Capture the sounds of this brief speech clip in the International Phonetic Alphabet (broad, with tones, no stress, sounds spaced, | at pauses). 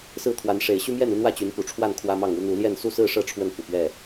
s ɹ̩˥˨ t̪ʰ w a˨˦ n ʂ e˨˦ ɪ̯ ɕ y˦ m j ɛ˥˨ n u˦ n̪ w ä˥˨ t͡ɕ y˨˦ n p u˨˩ ʈ͡ʂʰ w a˥˨ n kʰ w ä˦ m ɑ˥˨ ŋ u˦ n̪ u˨˦ l j ɛ˥˨ n s u˥˨ s ɹ̩˥˨ ʂ ɤ˥˨ ʈ͡ʂʰ w ə˥˨ n f u˨˩ p ɥ ɛ˥˨